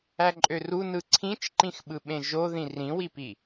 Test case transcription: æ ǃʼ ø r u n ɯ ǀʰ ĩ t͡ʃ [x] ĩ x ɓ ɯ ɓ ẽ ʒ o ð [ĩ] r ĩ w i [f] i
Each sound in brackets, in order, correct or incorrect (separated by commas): incorrect, correct, incorrect